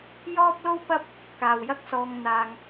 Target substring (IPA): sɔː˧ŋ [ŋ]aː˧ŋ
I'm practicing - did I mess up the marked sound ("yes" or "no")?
yes